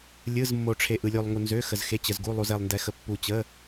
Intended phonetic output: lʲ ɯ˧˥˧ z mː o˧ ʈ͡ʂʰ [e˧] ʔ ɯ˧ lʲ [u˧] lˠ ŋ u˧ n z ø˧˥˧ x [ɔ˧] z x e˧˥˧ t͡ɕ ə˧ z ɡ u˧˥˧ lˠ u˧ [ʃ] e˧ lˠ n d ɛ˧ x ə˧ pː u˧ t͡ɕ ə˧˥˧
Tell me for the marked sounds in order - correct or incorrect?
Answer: correct, correct, incorrect: ə˧, incorrect: z

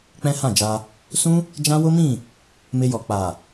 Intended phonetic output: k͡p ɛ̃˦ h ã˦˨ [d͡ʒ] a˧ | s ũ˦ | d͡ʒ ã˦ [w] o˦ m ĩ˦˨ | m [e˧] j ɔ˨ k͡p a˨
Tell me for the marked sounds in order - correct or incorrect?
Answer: correct, correct, correct

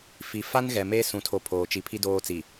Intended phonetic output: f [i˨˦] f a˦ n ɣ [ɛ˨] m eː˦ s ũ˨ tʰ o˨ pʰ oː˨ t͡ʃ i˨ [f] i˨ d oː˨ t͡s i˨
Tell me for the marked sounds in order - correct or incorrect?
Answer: incorrect: i˨, correct, incorrect: pʰ

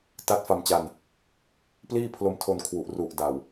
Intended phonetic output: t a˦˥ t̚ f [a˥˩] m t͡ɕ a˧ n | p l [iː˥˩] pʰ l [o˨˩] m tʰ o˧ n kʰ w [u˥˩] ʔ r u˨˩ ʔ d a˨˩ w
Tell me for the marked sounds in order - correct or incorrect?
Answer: incorrect: a˧, correct, incorrect: o˧, incorrect: u˨˩

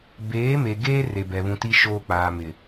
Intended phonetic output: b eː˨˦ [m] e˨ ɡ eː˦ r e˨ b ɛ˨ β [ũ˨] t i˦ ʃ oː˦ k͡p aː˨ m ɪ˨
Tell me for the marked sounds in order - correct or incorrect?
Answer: correct, correct

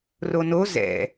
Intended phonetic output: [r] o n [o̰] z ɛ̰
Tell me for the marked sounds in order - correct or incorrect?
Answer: correct, incorrect: o

